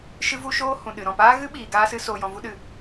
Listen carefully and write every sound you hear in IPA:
ʃɨ˦vu˦ʃoː˦ hũ˨ ɗɨ˨ɾɔ̃˦˨paː˦ ɣɨ˦ɓiː˨ ɡaː˦sɨ˦ soː˧jɔ̃˧vu˦ɗɨ˦˨

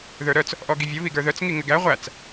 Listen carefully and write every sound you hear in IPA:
ðə˞ɾœt͡s | ʔɔɡivʲə βiɡə˞ðœt͡s ŋiŋɘɡæ ʁʷæt͡s

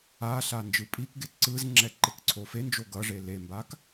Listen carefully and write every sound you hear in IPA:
aɬa nd͡ʒɯpʼikɡe ǀɯzŋ͡ǁɛ ǃekǀʰofend͡ʒo ɡʌʐe lembak

